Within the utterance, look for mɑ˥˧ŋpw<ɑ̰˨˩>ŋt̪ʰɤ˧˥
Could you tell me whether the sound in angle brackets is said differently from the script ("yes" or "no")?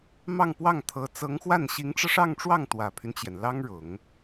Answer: yes